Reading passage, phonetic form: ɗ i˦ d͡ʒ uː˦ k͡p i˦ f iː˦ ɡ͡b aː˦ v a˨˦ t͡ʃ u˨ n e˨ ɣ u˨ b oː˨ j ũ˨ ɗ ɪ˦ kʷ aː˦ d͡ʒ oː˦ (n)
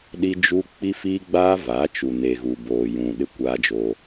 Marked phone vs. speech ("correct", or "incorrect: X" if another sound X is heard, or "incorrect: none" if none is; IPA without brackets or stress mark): incorrect: none